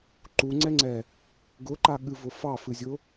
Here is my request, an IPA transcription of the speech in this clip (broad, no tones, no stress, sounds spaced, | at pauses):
ǃ u ŋ͡ǀ ɛ ŋ͡ǀ ɛ | ɡ ʊ ǃ a ɠ ɨ v ʊ f ɑ f ɨ zʲ ʊ